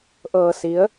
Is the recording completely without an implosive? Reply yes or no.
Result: yes